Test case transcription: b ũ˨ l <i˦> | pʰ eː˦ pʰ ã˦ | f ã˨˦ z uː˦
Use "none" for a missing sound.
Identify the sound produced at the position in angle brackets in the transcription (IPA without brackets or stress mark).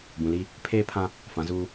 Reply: i˦